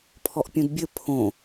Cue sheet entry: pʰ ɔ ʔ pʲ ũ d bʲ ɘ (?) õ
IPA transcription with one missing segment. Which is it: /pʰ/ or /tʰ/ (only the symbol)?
pʰ